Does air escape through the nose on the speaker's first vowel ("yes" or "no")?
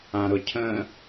yes